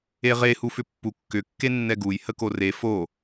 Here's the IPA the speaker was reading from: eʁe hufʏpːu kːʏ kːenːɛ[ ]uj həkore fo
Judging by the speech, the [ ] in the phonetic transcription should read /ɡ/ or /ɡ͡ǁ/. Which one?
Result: ɡ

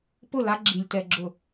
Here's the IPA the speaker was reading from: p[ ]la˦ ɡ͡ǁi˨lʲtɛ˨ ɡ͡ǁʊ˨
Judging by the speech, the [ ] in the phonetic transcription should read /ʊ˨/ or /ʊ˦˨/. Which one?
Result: ʊ˦˨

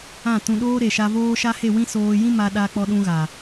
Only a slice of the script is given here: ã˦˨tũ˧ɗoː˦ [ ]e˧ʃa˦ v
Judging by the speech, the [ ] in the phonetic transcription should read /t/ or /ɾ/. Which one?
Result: ɾ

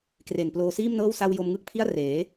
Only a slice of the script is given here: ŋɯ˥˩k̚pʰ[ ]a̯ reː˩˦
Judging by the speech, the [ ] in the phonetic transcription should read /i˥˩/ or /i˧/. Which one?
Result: i˥˩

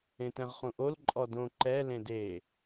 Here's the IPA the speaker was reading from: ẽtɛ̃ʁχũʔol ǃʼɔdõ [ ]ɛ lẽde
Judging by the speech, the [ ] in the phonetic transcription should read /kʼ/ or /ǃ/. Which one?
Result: ǃ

